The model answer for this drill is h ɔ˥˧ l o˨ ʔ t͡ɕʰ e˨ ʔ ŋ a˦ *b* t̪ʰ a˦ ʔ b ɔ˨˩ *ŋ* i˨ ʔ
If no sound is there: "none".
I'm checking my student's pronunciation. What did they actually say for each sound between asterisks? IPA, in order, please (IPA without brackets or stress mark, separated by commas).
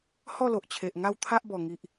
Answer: w, ŋ